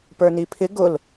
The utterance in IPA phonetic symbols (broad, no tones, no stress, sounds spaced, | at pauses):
p ə˞ n i pʰ ɪ ɡ ʊ l